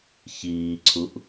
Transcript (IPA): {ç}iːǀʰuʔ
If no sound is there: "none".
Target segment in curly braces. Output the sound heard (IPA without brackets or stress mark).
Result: ç